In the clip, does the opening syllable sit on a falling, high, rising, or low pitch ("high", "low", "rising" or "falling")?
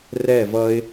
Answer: falling